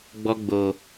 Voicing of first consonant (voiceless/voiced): voiced